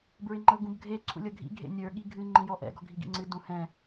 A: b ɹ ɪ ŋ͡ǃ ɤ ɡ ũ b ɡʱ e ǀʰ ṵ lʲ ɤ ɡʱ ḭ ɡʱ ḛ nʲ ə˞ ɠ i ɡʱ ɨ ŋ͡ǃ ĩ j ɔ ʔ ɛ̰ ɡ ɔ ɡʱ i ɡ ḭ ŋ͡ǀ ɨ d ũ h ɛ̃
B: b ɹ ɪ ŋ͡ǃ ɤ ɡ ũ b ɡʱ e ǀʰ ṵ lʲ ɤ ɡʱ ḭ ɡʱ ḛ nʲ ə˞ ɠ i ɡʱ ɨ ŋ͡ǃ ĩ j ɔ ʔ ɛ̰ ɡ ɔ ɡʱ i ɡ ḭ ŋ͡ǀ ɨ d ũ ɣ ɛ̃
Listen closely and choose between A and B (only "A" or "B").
A